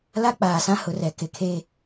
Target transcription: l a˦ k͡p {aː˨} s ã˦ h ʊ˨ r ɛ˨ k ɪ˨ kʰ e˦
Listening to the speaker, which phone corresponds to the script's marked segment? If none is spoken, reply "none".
aː˨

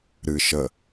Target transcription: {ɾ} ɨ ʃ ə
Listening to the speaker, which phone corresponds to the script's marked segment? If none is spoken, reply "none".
ɾ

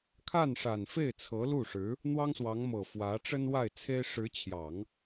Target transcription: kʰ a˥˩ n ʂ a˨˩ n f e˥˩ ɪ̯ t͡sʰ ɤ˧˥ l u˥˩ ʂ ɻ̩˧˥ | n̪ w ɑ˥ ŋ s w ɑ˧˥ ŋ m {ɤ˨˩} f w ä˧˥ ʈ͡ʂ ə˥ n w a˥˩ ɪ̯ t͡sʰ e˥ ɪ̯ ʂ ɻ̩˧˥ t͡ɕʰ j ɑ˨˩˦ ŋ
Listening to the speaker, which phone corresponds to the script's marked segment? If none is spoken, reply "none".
ɤ˨˩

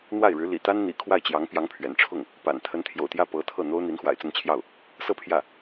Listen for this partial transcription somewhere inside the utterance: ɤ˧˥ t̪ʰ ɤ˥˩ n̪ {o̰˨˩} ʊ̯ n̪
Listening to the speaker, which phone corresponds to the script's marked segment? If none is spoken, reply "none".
o˥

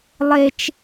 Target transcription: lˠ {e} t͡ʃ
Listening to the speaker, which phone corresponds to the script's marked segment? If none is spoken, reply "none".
e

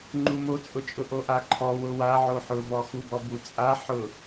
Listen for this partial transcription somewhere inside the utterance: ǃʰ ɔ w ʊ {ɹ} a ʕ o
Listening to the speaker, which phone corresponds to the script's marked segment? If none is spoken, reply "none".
w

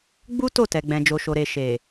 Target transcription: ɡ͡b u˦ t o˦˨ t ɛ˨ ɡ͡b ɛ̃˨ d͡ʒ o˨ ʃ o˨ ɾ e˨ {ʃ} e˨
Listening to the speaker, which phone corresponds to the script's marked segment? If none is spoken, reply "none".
ʃ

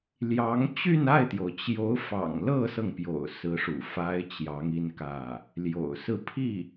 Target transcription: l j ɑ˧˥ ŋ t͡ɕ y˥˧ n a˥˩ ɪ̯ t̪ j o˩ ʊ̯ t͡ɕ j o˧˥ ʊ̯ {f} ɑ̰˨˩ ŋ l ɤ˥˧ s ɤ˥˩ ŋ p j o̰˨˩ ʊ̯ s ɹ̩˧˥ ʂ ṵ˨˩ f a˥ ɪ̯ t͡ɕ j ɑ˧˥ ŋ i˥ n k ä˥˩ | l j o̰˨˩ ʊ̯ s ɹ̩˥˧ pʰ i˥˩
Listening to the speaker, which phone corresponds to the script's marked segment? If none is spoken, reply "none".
f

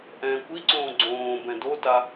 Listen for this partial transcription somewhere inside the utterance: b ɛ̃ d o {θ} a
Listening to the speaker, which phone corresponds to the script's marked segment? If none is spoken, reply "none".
t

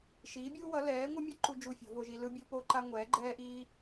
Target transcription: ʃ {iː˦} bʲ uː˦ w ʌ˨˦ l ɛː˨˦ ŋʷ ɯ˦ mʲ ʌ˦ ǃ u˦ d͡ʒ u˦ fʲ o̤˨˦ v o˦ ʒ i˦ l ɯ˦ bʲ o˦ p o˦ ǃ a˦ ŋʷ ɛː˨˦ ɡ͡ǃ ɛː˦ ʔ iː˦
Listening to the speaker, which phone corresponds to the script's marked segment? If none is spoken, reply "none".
iː˨˦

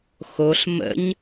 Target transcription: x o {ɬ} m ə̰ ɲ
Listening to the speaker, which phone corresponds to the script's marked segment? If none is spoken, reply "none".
ɬ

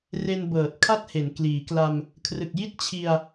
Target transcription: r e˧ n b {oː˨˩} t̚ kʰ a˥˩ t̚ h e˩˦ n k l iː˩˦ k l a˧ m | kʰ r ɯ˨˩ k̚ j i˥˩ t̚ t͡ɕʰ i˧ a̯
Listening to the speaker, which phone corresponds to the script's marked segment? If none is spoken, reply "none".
ɤː˨˩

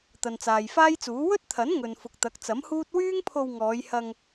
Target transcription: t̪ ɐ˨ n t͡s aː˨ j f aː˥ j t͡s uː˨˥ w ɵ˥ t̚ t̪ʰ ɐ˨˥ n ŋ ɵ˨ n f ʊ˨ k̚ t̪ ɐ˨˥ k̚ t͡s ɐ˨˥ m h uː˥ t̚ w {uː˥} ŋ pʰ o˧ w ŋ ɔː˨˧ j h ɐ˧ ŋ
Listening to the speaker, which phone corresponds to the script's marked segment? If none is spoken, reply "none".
yː˥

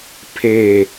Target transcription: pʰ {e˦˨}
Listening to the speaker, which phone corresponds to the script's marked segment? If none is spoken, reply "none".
e˦˨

